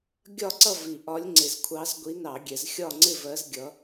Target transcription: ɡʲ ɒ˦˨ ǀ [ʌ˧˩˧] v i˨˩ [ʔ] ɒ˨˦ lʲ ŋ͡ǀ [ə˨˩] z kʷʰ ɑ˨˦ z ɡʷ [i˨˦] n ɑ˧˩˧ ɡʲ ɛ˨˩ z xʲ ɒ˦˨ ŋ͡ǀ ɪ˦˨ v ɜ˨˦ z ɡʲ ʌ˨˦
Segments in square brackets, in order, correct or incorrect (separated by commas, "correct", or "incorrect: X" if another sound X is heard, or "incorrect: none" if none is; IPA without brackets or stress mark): incorrect: ʌ˦˨, correct, incorrect: ɪ˨˩, correct